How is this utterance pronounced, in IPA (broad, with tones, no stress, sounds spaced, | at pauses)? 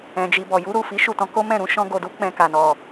ɛ̃˨ d͡ʒ i˨ b ɔ˨ j u˨˦ ɾ u˦˨ f i˨˦ ʃ u˦˨ t ɔ̃˨˦ k o˦ m ɛ̃˦˨ ɾ ũ˨˦ ʃ ɔ̃˧ ɡ o˨ d u˨˦ k͡p ɛ̃˧ k a˨ n ɔ˨